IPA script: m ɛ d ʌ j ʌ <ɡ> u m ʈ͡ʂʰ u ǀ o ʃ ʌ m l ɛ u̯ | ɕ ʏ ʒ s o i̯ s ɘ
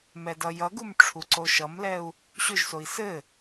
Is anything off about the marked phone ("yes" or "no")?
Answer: no